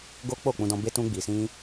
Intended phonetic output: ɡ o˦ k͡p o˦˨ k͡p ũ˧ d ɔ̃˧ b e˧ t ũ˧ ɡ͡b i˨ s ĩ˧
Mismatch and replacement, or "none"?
none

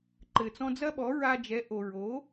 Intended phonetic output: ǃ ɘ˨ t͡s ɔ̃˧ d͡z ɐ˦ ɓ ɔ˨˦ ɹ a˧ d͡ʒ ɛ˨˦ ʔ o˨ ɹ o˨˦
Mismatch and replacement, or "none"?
none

